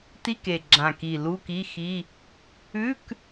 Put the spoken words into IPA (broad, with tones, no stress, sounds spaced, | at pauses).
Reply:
t i˧˥˧ k e˨˩ ɡ͡ǁ ã˨˩ k i˨˩ l u˧˥˧ k i˧˥˧ x i˧˥˧ | ʉ˧˥˧ k